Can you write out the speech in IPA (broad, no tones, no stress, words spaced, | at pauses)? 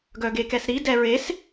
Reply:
ɡœɡekɛsɾi dɛɹes